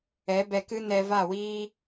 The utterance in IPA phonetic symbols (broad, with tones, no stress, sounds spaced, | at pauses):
ɛ˨˦ b ɛ˧ k ɨ˦ n ɛ˧ v a˦˨ w iː˦